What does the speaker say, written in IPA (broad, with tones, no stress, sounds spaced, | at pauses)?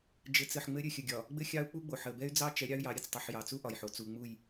d͡ʒ ɘ˨˦ t͡s ɘ˨ ħ ŋ͡m ɘ˦ ɾʲ ɘ˦˨ xʲ ə˨ ɡʲ ɒ˨ | ɡ͡b ɘ˦ xʲ ɑ˦ u̯ k͡p u˦ ɡ͡b o˨ ħ ə˨ b ɛ˦ y̯ d͡z ɑ˦ t͡ʃ ɛ˨˦ ɾʲ ɑ˦ y̯ j ɑ˨˦ ɾʲ ɘ˨ t͡s tˤ u˨ ħ j ɑ˨ t͡s u˦ ʔ ɒ˨ j ħ o˨ t͡s u˨ ŋ͡m u˦˨ j